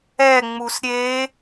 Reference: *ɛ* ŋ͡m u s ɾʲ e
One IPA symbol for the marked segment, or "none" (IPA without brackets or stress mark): ɛ